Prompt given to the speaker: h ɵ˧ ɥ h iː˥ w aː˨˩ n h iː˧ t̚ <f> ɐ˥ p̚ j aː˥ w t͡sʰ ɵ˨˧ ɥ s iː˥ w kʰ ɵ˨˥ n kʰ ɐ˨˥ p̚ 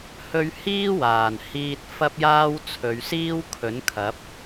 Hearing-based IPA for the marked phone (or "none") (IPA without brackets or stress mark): f